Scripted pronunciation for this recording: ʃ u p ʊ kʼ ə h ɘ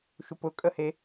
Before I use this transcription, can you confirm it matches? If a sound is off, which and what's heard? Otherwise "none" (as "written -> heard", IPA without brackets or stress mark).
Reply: ɘ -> e